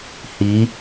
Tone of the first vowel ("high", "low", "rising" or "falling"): rising